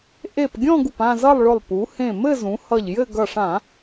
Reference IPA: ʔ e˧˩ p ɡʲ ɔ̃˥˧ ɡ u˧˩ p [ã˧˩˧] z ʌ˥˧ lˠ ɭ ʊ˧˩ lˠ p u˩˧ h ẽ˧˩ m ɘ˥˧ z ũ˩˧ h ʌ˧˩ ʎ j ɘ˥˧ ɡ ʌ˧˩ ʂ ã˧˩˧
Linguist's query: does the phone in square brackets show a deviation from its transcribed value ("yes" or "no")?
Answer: yes